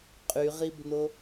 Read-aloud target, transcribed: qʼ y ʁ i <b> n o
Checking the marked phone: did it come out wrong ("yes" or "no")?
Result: no